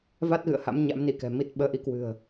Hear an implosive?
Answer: yes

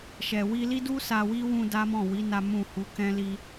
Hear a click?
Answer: no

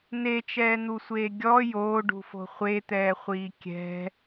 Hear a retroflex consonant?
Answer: yes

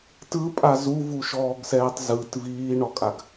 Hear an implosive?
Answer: no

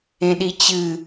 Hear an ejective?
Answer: no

